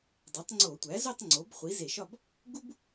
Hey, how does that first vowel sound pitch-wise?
rising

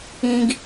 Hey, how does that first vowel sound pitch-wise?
low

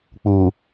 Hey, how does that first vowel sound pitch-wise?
low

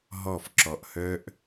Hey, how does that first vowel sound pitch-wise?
falling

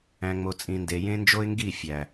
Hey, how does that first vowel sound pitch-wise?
low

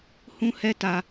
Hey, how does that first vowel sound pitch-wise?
high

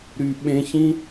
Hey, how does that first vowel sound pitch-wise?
low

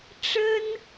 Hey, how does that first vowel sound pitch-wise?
high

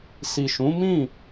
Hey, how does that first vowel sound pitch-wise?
low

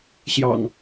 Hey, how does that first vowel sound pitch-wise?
low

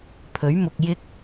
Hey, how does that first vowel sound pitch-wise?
rising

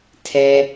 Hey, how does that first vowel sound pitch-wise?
high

